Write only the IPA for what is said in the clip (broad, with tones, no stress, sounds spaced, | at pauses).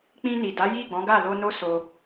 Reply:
k͡p ĩ˧ n i˨ d a˨˦ j i˦˨ ɡ͡b ɔ̃˨˦ ɡ a˦˨ l o˧ n o˦ s o˧